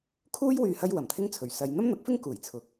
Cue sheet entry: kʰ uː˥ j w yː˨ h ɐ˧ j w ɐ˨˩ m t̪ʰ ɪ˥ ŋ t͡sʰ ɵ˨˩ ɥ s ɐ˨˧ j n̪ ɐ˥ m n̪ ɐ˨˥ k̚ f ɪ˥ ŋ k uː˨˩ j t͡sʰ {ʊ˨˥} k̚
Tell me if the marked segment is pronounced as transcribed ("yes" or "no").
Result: yes